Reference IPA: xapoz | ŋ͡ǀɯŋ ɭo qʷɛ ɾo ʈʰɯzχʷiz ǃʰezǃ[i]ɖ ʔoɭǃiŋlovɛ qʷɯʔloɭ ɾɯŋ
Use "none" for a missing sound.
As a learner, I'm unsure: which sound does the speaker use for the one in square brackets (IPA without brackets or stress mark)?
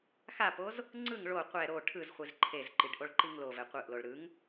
i